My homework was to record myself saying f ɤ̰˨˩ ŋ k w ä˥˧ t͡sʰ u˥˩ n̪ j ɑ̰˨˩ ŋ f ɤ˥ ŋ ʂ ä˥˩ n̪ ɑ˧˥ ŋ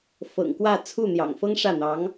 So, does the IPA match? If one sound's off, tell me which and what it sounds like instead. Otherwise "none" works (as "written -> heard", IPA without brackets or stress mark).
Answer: none